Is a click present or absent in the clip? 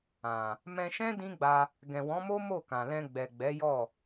absent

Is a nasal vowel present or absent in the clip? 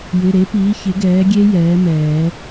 absent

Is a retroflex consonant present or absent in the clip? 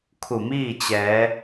absent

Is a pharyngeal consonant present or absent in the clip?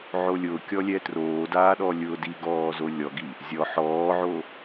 present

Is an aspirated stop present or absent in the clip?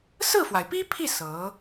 present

